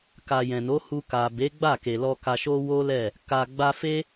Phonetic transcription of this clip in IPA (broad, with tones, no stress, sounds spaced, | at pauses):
k a˨ j ɛ̃˨ n o˨˦ h u˧ k a˨ b e˨˦ ɡ͡b a˦˨ k e˨ l ɔ˧ k a˧ ʃ o˦ w o˦ l ɛ˦˨ | k a˨ ɡ͡b a˧ f e˦